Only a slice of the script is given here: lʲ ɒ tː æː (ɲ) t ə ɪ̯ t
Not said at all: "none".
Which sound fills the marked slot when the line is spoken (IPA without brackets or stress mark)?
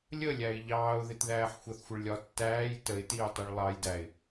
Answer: j